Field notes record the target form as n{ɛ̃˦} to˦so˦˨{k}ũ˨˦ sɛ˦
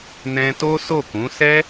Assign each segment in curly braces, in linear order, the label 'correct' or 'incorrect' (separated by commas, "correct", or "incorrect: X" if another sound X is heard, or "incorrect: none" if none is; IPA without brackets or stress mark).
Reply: correct, correct